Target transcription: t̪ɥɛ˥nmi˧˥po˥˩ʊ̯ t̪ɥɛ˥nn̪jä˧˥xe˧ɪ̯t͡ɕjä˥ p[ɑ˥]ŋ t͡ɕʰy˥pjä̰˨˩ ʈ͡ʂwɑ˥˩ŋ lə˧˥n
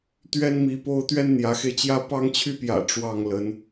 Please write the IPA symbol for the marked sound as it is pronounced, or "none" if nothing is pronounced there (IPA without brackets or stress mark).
ɑ˥